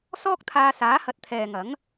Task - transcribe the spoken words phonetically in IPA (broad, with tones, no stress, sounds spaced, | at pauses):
s ɔː˥ k̚ t̪ʰ aː˧ s aː˨˥ h ɐ˨ t̚ t̪ʰ ɛː˨ ŋ ɐ˨˥ ŋ